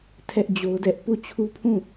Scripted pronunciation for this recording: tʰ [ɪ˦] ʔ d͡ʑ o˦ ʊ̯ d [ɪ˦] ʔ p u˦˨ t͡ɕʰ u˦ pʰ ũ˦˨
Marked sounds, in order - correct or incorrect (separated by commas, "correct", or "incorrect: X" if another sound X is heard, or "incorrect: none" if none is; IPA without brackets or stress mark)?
incorrect: ɛ˦, incorrect: ɛ˦